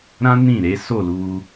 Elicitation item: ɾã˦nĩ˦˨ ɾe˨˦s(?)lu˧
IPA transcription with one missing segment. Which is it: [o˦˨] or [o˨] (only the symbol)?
o˦˨